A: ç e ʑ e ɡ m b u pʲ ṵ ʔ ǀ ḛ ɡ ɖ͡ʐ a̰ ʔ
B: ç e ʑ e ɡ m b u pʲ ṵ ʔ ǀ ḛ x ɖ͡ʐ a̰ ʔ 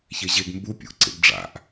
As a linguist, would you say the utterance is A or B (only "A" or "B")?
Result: A